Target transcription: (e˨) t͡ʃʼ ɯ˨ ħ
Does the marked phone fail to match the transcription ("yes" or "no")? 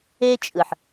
yes